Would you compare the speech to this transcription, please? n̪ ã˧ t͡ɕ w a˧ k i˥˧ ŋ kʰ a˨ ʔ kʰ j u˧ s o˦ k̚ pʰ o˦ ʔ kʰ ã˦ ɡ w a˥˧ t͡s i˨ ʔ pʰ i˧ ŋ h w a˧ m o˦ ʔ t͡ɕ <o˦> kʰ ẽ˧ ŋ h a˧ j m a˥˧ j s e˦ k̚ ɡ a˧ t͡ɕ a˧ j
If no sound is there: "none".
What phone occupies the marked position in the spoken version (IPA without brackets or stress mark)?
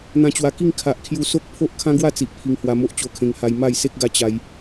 o˧